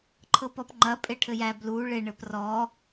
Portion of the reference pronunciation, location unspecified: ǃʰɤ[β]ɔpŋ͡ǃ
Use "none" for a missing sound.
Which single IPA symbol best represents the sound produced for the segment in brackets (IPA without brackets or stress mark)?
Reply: p